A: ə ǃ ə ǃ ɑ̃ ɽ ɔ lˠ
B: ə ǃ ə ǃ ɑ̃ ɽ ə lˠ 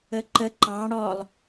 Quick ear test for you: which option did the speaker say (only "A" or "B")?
A